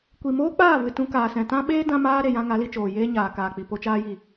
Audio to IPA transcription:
kʷi˨ moː˦k͡paː˦˨vɨ˨ tũ˧ kaː˨sɛ̃˨tã˦ ɓeː˦ dã˦maː˦ ɾe˨jã˧ ŋa˨˦li˧t͡ʃoː˨ jeː˦ɲaː˨kaː˨k͡pi˨ po˧t͡ʃaː˧ji˨

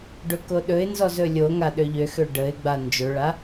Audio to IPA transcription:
ɖɵkoɗɵɪ̯nzɔz ɵlʲoŋa ɗøʎøxø ɖəɪ̯ɡ͡ba nd͡ʒɵɭa

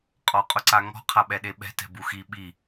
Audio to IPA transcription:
qʼɔqʼʊǀaŋɔ̤ qʰaɓɛɗeɓɛ̤ tɛ̤buxi ɓi

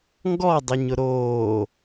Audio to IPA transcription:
ŋɡɔdˤəɲʊ ɾoː

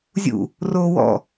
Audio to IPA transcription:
zʲṵ | roːwɔ̰

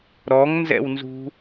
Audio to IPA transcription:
ɾɔŋnzɛ̰wnzṳ

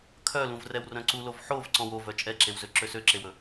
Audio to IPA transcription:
kʰœlũv rɛwrœ̃ǀulov ħov ǀɔ̃wovœ t͡ʃʼɛǁewzø ǁøsøǁewɵ

